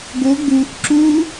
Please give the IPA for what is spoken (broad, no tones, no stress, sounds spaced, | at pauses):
ɡ o ɡ u ʔ ǁ u